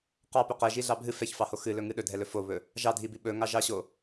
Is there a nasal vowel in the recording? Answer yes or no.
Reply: no